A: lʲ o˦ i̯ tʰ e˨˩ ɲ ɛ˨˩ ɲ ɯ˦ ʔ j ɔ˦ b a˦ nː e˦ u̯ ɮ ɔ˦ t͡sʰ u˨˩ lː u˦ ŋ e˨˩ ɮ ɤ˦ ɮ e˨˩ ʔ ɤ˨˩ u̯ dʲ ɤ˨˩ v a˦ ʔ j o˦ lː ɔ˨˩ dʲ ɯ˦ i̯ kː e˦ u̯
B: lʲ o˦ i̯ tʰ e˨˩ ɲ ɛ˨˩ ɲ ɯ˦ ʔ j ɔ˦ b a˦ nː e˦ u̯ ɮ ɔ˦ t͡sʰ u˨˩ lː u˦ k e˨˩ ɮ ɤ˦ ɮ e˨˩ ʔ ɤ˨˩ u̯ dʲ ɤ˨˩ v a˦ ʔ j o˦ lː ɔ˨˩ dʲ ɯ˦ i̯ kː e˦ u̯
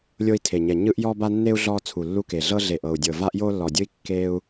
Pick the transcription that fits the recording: B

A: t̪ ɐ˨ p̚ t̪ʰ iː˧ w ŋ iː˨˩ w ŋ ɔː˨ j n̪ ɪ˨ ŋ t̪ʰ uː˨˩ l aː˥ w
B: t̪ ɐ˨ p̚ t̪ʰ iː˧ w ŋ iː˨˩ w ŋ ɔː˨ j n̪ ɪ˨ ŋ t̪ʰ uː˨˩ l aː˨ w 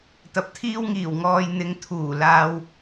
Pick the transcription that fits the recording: B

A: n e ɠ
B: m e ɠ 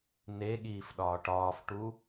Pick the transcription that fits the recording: A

